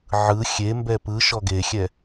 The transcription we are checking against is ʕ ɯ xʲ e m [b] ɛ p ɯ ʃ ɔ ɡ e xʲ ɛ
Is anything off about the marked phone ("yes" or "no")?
no